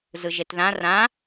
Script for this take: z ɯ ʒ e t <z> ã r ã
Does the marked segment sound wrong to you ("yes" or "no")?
yes